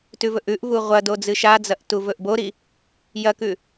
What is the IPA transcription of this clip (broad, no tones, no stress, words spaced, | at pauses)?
tʉvɵʔʉʔvu ʁʷɐ dod͡zɨʃad͡zɐʔ tuvɵʔboɾi | jɐkʉ